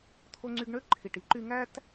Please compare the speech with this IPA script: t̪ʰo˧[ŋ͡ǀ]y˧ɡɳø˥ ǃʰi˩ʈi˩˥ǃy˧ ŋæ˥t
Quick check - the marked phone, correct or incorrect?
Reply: correct